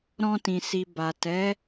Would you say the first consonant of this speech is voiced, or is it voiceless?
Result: voiced